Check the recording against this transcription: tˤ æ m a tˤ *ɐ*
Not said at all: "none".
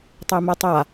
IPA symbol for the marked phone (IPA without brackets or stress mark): a